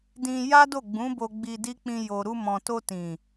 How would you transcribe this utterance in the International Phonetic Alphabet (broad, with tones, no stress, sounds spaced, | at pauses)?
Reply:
d ĩ˧ j a˦ d o˦˨ ɡ͡b ũ˨˦ b o˧ ɡ͡b i˧ d i˦ k͡p ĩ˧ j o˨ ɾ u˧ m ɔ̃˨ t o˧ t ĩ˨